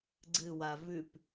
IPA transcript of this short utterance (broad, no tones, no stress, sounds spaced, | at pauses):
ɡ͡ǀ ɨ w a v ʉ p